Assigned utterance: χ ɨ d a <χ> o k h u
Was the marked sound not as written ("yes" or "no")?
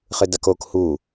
yes